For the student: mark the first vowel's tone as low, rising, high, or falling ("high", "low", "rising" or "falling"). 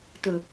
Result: low